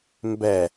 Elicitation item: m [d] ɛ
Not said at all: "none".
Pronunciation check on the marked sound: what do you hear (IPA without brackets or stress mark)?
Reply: b